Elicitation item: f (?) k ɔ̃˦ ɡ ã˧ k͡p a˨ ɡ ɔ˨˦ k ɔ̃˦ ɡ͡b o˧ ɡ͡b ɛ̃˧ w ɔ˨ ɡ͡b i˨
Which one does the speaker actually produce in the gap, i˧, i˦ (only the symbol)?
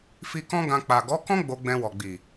i˧